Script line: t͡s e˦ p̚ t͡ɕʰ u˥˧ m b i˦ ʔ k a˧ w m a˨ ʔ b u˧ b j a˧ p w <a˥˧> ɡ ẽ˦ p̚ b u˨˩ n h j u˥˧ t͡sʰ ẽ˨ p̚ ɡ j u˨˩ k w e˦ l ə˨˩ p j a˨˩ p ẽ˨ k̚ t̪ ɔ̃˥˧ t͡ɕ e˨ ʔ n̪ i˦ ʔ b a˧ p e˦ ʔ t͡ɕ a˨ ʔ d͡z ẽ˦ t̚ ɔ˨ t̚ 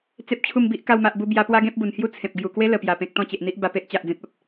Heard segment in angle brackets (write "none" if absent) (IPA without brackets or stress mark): a˦